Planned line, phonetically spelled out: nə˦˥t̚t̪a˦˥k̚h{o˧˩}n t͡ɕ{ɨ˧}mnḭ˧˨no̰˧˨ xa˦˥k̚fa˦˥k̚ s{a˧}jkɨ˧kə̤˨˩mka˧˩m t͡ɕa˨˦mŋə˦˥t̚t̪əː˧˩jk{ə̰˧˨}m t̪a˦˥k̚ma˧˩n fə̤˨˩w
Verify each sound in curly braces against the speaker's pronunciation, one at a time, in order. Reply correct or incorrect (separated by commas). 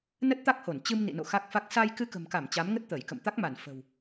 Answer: correct, correct, correct, correct